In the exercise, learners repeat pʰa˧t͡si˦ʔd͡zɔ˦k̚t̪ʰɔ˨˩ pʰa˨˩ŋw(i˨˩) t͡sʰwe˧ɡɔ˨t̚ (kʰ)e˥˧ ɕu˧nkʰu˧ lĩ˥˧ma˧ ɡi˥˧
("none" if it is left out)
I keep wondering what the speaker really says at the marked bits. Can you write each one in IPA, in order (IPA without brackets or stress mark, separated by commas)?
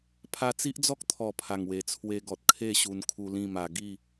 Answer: e˨˩, kʰ